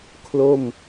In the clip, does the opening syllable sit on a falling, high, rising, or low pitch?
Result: falling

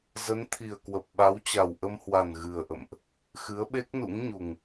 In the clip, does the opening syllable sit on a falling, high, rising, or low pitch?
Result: rising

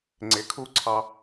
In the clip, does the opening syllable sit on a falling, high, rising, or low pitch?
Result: low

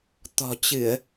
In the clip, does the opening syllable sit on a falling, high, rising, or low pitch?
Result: low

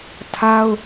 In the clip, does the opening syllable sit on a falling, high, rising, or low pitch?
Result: high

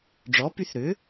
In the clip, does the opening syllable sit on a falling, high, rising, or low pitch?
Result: rising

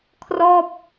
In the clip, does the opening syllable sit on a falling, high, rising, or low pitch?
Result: falling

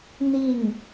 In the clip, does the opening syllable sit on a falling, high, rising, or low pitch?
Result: falling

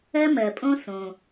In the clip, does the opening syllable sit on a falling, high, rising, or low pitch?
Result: high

